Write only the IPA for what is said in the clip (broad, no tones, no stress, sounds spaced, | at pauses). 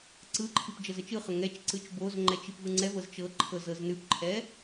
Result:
ǀ ɯ ǃʰ i p d͡ʒ ɤ z ə t͡ʃ ɯ χ ə ŋ ɛ t͡ʃ ǀ ɯ t͡ʃ b o z ŋ͡ǃ ɛ t͡ʃ i p v ɯ ŋ͡ǀ ɛ v ɤ z t͡ʃ ɤ ǃʰ ɤ z ɤ z n ʉ p ǃʰ ɛ